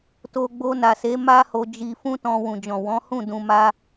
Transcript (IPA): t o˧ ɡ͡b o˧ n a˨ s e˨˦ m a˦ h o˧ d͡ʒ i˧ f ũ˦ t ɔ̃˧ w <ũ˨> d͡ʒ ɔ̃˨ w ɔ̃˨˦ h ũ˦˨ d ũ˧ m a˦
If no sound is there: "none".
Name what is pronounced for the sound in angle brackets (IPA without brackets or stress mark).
ũ˨